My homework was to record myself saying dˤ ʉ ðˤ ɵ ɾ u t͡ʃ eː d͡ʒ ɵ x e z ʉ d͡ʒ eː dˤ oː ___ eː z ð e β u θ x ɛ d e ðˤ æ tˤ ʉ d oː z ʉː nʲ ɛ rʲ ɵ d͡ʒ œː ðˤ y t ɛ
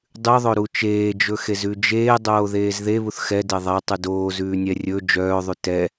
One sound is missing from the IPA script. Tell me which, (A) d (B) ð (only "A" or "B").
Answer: B